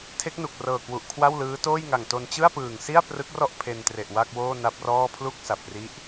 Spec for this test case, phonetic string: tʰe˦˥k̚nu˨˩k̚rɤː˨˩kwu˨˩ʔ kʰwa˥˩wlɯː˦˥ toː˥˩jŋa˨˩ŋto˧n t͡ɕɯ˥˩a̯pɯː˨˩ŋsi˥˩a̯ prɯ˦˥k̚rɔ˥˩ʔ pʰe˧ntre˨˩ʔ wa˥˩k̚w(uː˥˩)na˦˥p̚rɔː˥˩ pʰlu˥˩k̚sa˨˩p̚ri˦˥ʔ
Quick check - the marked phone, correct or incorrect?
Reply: incorrect